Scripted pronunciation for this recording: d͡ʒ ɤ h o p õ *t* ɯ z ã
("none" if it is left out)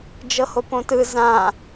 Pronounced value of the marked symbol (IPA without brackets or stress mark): t